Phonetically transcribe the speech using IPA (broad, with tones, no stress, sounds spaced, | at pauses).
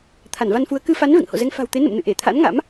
t̪ʰ a˧˩ n v a˧ n f u˨˦ ə̯ k ɨ˧ f a˨˦ n v ḛ˧˨ ŋ h o̰˧˨ z ɛ˧ ŋ f a̤˨˩ w t̪ e˨˦ n ə̰˧˨ m n ɨ̰˧˨ ʔ e˧˩ t̪ʰ a̰˧˥ n ŋ a̰˧˥ m